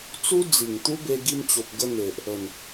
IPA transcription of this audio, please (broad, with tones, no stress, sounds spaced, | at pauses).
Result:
t͡s u˦ d͡z i˨˩ ŋ t̪ u˦ b e˧ ɡ i˧ m t͡ɕ o˨ p̚ ɡ ə˧ n̪ e˨ ʔ | ə˨˩ n